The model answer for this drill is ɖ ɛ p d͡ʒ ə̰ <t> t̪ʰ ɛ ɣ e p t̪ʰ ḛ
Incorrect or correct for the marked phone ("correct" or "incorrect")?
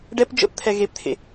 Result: incorrect